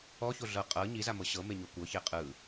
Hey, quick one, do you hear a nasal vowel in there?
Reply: no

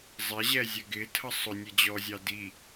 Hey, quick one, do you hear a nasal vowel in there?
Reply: no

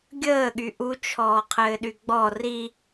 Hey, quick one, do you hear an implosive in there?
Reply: yes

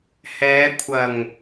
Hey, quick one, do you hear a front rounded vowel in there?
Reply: no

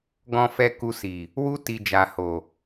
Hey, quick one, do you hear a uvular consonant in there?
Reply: no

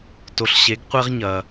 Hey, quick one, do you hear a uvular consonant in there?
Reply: yes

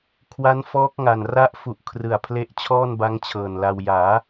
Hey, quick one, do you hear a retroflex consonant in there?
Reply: no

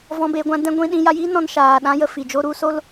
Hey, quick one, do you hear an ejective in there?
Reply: no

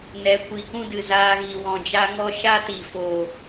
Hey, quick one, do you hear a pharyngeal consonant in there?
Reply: no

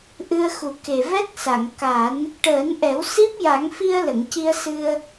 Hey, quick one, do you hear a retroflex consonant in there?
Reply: yes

